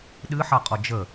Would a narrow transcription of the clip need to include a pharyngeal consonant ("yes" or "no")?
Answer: yes